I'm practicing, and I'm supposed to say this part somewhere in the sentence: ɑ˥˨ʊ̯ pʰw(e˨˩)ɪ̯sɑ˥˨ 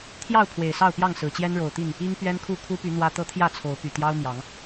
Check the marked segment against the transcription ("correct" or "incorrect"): correct